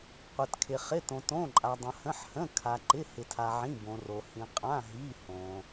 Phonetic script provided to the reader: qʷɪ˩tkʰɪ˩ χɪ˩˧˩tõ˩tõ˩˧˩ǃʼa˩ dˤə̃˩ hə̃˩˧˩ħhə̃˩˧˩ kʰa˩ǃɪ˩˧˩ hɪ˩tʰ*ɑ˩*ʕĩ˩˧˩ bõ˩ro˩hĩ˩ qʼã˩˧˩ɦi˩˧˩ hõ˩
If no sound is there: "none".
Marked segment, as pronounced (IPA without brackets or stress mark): a˩